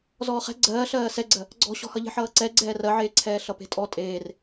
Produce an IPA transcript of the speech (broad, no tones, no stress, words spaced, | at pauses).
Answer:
zɔːχɛ̤ ɡ͡ǀɜːɬɜː sɛɡ͡ǀɜ | ɡ͡ǀɔ̤ɕɔ̤hʌ ʎe̤ħʌːǀɛ ɡ͡ǀɛːrɜʕeːǀʰɛː ɬʌpe̤tʼɔ tʼeːr